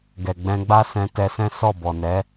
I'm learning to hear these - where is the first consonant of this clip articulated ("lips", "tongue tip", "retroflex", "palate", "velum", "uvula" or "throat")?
velum